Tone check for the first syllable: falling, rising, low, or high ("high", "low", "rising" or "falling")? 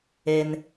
low